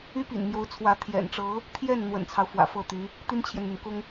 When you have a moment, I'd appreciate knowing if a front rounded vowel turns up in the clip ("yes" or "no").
yes